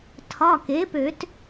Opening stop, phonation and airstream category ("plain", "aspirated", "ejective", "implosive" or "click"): aspirated